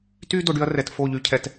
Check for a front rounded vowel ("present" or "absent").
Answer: present